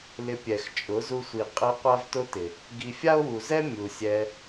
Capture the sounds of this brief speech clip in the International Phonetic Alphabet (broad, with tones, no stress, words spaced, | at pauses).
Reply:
lɪ˧pʲɛ˨xt͡ʃʼʊ˨˦ zu˧sʷi˨ qʼe˧ qʷa˦vtʊ˦tɪ˨ | ɡi˨ fʲa˦o̯wu˨zɛ˦ mʲu˨sʲɛ˧